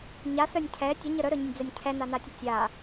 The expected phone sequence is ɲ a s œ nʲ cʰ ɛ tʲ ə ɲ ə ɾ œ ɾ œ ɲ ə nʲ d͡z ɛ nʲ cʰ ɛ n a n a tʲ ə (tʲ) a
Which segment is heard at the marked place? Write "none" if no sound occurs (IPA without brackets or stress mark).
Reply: tʲ